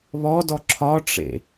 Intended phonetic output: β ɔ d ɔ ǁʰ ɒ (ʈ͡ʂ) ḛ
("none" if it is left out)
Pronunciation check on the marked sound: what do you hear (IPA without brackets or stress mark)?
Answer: ʈ͡ʂ